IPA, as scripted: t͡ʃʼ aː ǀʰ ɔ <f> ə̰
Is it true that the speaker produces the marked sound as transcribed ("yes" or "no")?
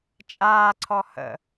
no